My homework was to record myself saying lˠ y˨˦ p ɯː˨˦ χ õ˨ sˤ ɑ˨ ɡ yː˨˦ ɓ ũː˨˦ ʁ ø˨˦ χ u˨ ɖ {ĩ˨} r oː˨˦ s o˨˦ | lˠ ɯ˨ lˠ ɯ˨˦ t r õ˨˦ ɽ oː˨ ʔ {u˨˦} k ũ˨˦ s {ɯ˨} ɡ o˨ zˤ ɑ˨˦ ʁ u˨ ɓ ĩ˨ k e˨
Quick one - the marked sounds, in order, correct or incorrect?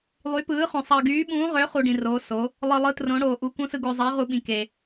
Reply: correct, correct, correct

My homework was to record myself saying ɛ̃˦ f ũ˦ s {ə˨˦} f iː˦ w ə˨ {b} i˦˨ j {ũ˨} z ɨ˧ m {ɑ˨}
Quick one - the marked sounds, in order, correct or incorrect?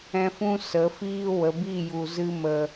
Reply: correct, correct, incorrect: u˨, incorrect: ə˨

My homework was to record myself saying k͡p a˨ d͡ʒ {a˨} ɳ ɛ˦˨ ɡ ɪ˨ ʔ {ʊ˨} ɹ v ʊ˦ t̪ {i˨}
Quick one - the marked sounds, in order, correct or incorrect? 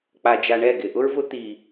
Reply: correct, incorrect: ʊ˦, correct

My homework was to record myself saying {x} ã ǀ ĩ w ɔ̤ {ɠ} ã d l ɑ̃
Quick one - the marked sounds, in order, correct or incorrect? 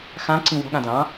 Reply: correct, correct

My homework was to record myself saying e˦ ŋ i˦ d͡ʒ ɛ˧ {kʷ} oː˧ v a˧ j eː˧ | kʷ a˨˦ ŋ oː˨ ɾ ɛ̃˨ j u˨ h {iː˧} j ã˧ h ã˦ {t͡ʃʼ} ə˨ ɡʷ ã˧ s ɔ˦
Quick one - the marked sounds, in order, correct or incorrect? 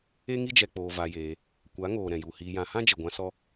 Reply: incorrect: k͡p, correct, incorrect: d͡ʒ

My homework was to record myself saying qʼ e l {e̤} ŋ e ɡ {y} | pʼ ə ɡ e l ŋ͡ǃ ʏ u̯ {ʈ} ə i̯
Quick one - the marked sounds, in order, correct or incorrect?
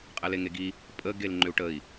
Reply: incorrect: e, incorrect: i, correct

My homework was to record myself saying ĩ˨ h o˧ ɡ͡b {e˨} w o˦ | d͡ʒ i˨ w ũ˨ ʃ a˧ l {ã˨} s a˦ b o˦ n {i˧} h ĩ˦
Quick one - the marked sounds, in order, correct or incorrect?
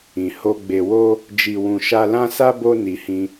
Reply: incorrect: e˧, incorrect: ã˦, correct

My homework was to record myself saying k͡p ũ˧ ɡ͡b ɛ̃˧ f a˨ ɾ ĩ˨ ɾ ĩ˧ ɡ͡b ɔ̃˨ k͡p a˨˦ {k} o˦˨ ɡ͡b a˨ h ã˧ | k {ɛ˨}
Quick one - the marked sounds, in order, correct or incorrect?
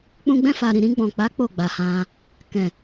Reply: incorrect: k͡p, incorrect: ɛ̃˨

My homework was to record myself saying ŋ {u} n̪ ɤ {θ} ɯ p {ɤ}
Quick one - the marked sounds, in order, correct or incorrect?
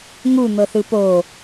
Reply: correct, correct, incorrect: o

